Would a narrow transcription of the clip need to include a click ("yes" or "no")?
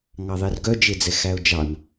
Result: no